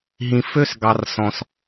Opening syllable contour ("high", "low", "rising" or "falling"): low